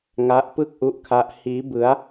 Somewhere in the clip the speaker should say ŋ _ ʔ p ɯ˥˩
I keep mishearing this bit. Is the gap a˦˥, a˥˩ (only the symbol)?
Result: a˦˥